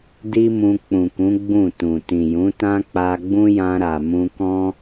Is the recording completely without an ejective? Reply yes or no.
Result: yes